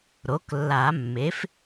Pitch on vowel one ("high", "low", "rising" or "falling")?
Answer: rising